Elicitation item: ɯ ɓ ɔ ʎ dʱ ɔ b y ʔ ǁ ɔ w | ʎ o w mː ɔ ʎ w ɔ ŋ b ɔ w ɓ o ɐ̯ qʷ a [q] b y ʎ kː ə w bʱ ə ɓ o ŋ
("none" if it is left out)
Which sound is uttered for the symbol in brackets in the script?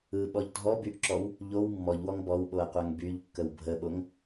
ŋ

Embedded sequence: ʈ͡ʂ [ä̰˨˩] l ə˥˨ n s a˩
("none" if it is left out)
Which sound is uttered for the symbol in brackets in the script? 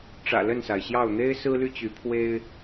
ä̰˨˩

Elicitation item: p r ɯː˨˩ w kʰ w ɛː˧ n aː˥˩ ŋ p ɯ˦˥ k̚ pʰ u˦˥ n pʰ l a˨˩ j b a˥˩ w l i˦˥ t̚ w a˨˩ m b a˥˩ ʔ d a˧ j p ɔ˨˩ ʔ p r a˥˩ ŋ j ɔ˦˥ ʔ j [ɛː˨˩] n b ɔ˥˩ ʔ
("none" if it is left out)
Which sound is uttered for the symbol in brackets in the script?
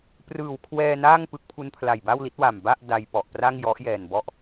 ɛː˨˩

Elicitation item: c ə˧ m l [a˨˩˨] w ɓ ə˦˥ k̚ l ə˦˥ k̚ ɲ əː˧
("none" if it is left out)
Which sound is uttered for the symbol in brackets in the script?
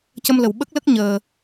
ə˨˩˨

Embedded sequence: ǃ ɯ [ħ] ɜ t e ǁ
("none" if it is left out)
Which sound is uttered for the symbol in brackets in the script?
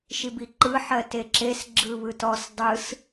ħ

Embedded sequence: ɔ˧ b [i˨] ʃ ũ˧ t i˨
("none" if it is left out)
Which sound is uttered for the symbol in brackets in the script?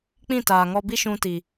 i˦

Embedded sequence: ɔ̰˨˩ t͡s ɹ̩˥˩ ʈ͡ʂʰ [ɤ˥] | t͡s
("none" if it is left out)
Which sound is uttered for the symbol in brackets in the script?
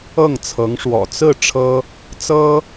ɤ˥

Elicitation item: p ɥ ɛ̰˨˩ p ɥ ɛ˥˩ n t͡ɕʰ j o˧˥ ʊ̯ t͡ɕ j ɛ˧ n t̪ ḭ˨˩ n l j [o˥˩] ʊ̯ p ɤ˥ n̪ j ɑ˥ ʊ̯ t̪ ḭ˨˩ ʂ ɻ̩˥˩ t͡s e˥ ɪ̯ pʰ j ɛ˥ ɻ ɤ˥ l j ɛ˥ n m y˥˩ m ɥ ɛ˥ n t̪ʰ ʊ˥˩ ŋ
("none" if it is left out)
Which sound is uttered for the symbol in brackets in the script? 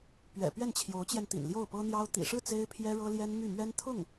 o˥˩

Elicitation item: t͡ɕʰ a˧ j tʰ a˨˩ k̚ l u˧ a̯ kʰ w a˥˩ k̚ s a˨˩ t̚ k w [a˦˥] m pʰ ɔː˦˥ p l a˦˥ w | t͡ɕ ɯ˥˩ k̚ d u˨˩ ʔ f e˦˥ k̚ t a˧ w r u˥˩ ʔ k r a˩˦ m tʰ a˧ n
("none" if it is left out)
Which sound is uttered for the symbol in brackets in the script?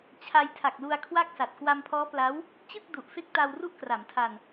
a˧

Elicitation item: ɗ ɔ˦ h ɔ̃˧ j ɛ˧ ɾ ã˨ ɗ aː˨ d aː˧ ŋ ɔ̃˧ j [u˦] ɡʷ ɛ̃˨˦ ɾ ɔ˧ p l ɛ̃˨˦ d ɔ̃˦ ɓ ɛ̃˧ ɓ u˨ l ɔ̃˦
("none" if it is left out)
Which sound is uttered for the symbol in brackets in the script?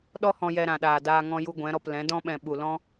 u˧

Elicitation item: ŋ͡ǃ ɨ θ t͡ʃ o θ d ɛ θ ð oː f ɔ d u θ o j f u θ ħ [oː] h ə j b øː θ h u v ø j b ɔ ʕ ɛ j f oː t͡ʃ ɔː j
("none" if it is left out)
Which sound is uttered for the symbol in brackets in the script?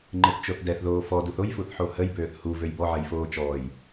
o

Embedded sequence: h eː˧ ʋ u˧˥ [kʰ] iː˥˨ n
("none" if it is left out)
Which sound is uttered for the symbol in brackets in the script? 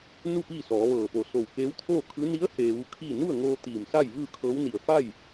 kʰ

